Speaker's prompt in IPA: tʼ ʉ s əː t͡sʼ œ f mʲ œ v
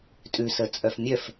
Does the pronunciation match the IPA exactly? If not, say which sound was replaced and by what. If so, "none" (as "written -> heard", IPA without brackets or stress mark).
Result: v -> f